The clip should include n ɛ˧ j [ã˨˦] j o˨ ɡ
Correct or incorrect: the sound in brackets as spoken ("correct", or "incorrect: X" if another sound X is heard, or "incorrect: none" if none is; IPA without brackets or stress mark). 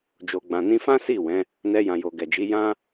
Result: incorrect: ã˨